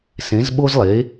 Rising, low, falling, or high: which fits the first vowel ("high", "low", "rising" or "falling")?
rising